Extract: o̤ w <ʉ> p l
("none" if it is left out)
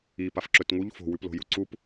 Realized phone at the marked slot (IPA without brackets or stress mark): ʉ